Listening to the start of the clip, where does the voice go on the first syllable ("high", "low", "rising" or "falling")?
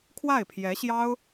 falling